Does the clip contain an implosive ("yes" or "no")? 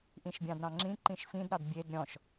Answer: no